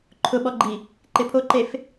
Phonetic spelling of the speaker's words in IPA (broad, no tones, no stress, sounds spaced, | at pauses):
ǃʰ ʊ ɓ ɔ ɡ͡ǃ i | ǃ ɪ pʰ o ǃ e f